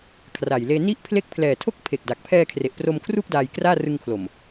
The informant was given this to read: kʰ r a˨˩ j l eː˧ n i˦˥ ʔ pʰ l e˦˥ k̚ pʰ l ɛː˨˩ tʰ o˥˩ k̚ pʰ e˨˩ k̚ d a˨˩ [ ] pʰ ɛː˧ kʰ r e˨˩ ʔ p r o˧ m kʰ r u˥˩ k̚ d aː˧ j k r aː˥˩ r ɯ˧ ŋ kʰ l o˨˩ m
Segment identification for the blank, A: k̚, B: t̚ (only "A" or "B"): A